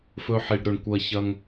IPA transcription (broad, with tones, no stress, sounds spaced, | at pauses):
f ɵ˧ ħ i˩ ɖ ɾ ɵ˩ ɳ kʷ ɐ˧ ç ɐ˧ ŋ